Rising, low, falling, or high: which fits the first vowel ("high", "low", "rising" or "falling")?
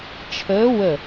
rising